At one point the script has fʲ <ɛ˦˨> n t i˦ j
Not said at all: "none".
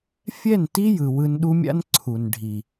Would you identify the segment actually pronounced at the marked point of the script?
ɛ˦˨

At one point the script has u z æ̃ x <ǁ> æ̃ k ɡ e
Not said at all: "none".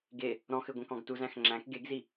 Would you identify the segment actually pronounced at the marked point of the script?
ŋ͡ǁ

